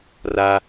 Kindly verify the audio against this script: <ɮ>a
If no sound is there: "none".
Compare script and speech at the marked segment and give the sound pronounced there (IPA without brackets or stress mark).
r